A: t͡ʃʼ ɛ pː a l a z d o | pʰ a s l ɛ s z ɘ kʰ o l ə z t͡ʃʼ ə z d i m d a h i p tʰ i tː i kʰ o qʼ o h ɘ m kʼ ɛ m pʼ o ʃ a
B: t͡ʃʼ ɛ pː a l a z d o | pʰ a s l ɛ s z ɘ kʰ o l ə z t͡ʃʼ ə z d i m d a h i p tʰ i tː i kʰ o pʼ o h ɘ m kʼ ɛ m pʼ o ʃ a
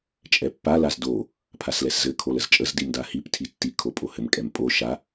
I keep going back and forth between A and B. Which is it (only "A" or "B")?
B